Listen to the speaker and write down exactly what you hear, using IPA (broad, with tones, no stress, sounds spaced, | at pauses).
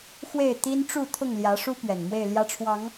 x w e˥˨ ɪ̯ t̪ i˦ n ʈ͡ʂ u˥˨ t̪ʰ ʊ˥˨ ŋ l j ä˨˦ ʂ u˦ p ɥ ɛ˨˩ n m w e˥˨ ɪ̯ l j ä˦ ʈ͡ʂʰ w ɑ˨˦ ŋ